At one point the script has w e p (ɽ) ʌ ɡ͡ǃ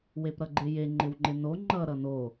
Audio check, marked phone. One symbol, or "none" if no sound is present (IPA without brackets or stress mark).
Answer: ɾ